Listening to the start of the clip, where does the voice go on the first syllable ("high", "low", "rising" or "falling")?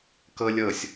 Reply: high